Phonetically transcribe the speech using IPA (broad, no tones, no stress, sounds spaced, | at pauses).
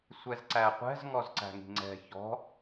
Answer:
sʷ ɛ z ǀ æ qʷ ɛ̤ z ŋ ɔ z ǀ æ̤ ŋ i̤ ŋ͡ǀ ɛ̤ ç ɔ̤